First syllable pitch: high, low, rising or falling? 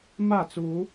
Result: falling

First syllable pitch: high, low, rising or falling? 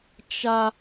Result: high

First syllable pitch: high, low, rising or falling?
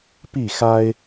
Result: falling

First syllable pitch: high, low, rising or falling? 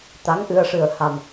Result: rising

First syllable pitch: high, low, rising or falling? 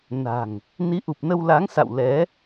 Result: low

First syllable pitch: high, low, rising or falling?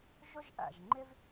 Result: high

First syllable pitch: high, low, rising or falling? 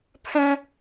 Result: high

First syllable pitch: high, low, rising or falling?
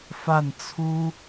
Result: falling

